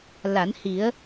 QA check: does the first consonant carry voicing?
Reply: yes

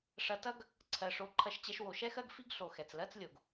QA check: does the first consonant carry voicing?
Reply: no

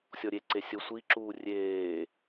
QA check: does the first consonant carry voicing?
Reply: no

